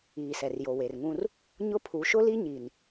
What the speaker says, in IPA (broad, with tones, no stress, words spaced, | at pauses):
iː˨sɛ˨rjo˨ we˨rŋũ˦r | ɲʊ˦pʰu˨˦ ʃʊ˦li˦ɲi˨n